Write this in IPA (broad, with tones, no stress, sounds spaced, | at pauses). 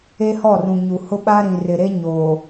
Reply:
e˦ h ɔ˦˨ r ũ˨ ɲ u˨ h ʊ˦ ɓ a˦ ɾ ĩ˨ r ɪ˨ ɾ e˦ ɲ oː˨